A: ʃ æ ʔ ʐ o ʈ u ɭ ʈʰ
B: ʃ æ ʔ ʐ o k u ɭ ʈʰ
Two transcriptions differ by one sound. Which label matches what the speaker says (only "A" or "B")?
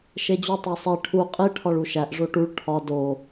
A